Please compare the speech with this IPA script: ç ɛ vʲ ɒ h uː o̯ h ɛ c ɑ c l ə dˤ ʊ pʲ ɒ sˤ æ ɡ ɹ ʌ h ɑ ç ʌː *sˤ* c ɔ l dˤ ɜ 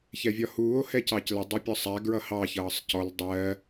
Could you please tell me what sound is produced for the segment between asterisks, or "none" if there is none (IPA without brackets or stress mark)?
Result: sˤ